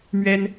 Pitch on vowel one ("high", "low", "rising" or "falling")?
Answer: high